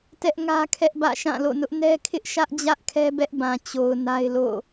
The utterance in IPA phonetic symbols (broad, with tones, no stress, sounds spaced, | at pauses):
t ɛ˦ ʔ ŋ ä˦ kʰ ɛ˦ ʔ b ä̰˦˨ ʃ ã˦˨ l o̰˦˨ n ʊ˦ ʔ n ɛ˦ kʰ ɪ˦ ʔ ʃ ä˦ ʔ d͡ʑ ä˦ ʔ kʰ ɛ˦ b ɛ˦ ʔ b ã˨ t͡ɕ o˨ ʊ̯ n a˦ ɪ̯ l o̰˦˨